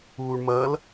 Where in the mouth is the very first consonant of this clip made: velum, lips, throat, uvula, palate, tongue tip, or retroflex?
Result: retroflex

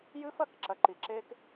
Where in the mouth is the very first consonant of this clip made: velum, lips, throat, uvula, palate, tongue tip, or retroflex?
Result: palate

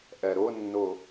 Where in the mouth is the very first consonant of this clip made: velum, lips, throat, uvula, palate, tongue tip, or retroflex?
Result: throat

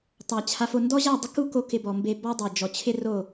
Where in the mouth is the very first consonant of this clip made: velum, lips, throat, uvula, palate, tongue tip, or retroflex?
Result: tongue tip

